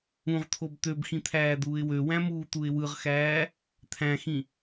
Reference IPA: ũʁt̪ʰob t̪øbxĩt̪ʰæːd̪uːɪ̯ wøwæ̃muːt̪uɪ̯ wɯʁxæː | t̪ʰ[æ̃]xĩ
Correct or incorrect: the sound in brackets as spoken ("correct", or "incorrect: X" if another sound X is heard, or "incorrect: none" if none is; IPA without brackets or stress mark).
correct